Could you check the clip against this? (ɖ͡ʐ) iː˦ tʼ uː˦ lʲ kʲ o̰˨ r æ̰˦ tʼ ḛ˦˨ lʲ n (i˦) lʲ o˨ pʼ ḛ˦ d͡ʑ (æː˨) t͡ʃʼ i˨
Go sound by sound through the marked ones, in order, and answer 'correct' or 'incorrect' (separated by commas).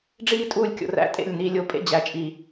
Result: correct, incorrect, incorrect